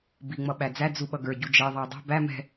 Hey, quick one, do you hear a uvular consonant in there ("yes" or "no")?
no